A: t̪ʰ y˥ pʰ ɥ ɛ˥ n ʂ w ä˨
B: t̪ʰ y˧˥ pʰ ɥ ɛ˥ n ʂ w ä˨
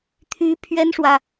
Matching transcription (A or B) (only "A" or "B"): B